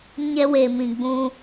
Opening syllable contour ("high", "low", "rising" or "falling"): high